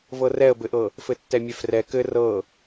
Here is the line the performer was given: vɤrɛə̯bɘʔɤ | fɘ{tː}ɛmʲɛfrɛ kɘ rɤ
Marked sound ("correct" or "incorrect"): correct